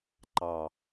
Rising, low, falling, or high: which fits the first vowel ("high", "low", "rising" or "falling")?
low